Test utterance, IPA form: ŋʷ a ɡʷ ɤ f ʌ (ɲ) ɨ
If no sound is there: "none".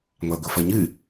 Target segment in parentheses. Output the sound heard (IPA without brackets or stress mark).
ɲ